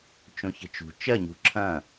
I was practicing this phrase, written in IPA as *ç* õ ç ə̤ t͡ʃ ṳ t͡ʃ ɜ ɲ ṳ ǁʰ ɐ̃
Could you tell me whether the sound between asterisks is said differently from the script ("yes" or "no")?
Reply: yes